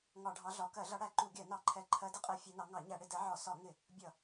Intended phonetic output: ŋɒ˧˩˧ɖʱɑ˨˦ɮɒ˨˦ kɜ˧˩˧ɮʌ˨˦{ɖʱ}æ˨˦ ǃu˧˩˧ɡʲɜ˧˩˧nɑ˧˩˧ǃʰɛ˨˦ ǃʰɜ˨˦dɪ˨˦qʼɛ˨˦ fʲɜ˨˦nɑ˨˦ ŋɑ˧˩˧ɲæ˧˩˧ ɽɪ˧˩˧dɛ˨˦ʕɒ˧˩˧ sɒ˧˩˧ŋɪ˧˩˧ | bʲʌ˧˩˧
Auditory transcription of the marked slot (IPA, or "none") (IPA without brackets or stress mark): ɽ